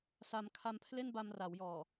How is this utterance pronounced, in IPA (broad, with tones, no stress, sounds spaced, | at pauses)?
s a˧ m kʰ a˧ m pʰ l e˥˩ n b a˧ m r a˩˦ w j ɔː˨˩